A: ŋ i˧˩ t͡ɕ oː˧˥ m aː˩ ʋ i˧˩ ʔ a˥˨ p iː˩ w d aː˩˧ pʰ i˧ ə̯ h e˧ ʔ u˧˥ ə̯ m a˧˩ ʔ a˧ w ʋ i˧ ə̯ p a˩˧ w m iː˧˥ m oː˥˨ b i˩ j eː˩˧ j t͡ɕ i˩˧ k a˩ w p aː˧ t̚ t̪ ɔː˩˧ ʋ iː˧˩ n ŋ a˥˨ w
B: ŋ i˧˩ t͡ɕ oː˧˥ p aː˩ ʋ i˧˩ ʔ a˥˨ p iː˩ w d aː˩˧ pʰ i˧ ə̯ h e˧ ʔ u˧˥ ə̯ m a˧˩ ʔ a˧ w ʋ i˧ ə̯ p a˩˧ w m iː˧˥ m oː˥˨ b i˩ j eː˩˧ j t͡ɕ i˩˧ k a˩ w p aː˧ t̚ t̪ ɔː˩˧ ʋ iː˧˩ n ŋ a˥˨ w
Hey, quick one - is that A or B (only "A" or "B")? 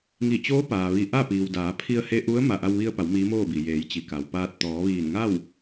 B